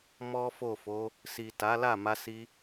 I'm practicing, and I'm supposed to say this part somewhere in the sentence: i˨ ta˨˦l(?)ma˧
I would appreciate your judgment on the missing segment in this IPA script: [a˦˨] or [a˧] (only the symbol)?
a˦˨